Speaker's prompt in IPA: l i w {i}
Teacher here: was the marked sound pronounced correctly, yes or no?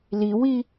yes